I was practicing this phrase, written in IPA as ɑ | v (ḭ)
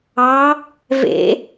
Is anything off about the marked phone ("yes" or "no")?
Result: yes